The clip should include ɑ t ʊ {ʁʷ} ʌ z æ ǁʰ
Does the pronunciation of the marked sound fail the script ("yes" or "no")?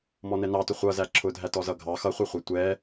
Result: yes